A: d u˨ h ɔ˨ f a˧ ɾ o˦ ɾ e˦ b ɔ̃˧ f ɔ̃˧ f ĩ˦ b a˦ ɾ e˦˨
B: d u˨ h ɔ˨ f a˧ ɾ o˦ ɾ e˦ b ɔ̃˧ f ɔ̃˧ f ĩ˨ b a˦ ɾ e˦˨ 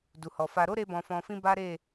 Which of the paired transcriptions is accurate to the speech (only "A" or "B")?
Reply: A